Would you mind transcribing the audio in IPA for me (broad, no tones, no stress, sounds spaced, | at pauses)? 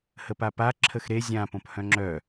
h ə p a p a ǁʰ ə x ɾ e zʲ ã p õ p h œ̃ ŋ͡ǁ œ